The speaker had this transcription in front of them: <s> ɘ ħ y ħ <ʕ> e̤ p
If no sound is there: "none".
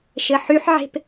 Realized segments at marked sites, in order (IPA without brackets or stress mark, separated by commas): ʃ, ʕ